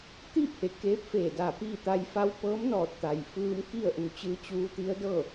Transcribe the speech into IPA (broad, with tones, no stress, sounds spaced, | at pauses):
t̪ i˥˨ pʰ e˩ k eː˧˥ p̚ f eː˧˩ d a˧˩ p iː˥˨ t̪ a˧ j f a˧˥ w p ɤː˧˥ m n ɔː˧˩ t̚ t̪ a˩ j f ɯː˧ m k i˥˨ ə̯ ʔ u˧˩ t͡ɕ ɯː˧˥ t͡ɕ uː˧˥ t̪ i˧˥ ə̯ d ɤː˥˨